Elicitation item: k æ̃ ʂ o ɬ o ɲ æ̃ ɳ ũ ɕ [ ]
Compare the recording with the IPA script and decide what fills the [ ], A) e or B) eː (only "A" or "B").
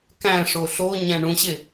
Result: A